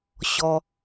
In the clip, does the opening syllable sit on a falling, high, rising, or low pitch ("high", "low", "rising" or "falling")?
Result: high